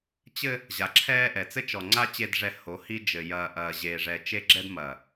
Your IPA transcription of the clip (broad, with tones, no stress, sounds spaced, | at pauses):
t͡ɕ ɘ˦ | ʑ a˨ ǁʰ ɛː˦ ʔ ɛ˨ t͡s ɘ˦ t͡ʃ ɔ˨ ŋ͡ǀ a˦ t͡ɕ e˦ d ʐ ɛ˦˨ h o˨˦ h i˦ d͡ʒ ɘ˨ j ɐː˨ ʔ ɐː˨ ʑ e˨ ʐ ɛ˨ t͡ʃ e˦ ɡ͡ǁ ɛ˦ d m ɐ˨